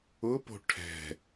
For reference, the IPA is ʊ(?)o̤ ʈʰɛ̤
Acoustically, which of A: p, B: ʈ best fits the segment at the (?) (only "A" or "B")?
A